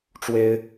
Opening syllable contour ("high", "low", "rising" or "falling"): high